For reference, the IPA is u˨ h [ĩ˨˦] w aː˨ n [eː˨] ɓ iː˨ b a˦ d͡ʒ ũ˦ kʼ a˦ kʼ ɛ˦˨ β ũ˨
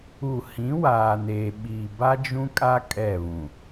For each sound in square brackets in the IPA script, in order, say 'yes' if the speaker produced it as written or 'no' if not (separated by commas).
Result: yes, yes